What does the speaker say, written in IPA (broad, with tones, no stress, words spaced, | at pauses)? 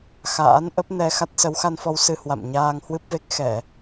xa̰ː˧˥n ʔə˦˥p̚nɛ˧xa˦˥t̚ sə˨˦wxa˧nfɔ˧w sɨ˧hwa̰˧˨m ɲaː˧ŋhwɨ˦˥p̚ve˦˥k̚ xɛ˧˩˨